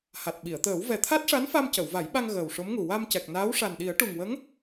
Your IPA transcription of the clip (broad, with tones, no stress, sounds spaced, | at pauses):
h a˨˩ t̚ ɓ i˨˩˨ ə̯ t̪ əː˨˩˦ w v ɛ˨˩ t̪ʰ a˦˥ t̚ ʂ a˧˥ n f a˧ m c ə˨˩˨ w v a˨˩˦ j ɓ a˧ ŋ ɣ əː˨˩ w ʂ o˧˥ m ŋ u˨˩ w a˧ m c ɛ˨˩ k̚ n aː˧˥ w ʂ a˨˩ n ɗ i˨˩˦ ə̯ ʈ u˨˩ ŋ w ə˧˥ ŋ